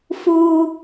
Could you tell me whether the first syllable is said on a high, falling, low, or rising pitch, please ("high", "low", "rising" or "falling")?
high